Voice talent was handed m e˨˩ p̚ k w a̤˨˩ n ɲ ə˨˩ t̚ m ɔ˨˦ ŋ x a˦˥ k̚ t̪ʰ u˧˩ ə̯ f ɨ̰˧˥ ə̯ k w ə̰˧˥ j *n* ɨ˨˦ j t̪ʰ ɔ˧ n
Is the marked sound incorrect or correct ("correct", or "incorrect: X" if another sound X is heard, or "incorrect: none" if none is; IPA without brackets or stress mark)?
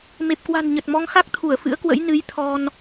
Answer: correct